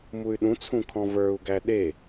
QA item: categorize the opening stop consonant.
implosive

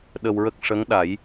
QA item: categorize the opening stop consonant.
implosive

